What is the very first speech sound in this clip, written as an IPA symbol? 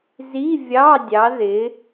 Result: z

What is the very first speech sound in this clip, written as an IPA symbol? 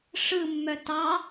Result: ʂ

